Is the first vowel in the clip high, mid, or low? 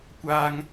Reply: low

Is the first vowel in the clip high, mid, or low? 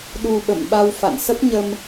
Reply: high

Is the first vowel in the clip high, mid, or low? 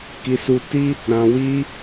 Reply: high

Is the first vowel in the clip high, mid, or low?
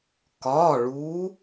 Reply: low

